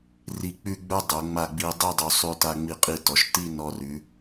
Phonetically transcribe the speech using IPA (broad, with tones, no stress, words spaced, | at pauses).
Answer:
ri˧˩ k͡pʉ˥˧ɡ͡bə˞˥dˤo˩˧ ŋ͡ma˧˩ ɡ͡bi˧dˤi˥˧dˤo˧ sˤʉ˧ta˧ ŋ͡mi˧˩qʼi˧˩tɔ˩˧ʃ ti˥˧ nɔ˧ rʉ˩˧